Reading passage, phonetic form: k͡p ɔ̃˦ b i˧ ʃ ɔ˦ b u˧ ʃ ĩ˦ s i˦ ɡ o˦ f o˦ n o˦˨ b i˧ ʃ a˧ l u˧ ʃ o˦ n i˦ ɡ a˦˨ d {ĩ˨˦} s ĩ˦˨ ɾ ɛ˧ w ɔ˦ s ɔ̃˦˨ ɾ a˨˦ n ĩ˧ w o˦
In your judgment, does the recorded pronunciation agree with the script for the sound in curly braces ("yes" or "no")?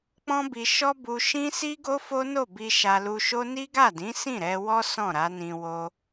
yes